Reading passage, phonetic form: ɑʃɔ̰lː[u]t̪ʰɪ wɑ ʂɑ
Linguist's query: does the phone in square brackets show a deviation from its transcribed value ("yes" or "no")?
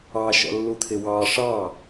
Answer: no